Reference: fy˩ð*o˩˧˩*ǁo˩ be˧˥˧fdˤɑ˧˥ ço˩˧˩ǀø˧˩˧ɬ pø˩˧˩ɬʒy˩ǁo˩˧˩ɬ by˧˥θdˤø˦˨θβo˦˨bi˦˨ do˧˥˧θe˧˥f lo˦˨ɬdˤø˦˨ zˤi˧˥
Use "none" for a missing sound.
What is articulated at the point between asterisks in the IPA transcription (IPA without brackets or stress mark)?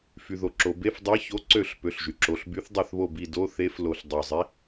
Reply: o˩